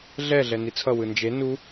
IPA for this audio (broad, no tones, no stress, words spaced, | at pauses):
ɮɛ ɮɛnit͡sʰʌ wɯnd͡ʒe nu